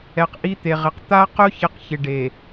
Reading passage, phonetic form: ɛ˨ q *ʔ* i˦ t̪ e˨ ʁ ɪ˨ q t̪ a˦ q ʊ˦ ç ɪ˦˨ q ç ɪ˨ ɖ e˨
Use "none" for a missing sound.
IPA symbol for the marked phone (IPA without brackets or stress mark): ʔ